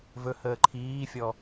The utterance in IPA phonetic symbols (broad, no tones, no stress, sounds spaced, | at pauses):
v ɵ h əː ǃʰ iː fʲ ɔ